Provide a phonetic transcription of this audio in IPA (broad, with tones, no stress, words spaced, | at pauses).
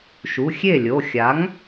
ʃu˩˧˩xʲe˥˩lʲo˩˧˩ xʲa˩˥ŋ